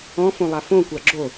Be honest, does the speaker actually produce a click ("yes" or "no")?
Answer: yes